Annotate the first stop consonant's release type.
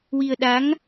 implosive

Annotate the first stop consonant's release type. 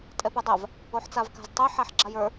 ejective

